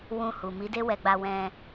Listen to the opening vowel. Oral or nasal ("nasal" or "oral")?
nasal